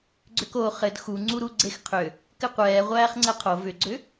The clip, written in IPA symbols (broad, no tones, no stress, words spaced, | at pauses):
ɡ͡ǀʏko χɘd xuŋ͡ǀuɾu ɡ͡ǀexqʰʏ | kɘqʷɛː ʁʷæːχŋ͡ǀɛqʰo vʏɡ͡ǀʏ